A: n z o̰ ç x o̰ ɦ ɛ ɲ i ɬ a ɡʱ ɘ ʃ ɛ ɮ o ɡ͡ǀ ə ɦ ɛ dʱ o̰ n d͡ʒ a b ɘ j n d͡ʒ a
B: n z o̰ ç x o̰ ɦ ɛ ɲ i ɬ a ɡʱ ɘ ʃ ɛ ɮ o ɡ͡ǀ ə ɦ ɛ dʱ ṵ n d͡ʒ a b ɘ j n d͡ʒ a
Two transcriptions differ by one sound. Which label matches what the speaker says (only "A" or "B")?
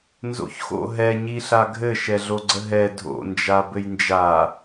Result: A